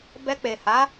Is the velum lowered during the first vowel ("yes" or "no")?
no